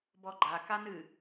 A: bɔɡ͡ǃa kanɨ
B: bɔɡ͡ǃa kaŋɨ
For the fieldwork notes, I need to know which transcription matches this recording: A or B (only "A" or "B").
A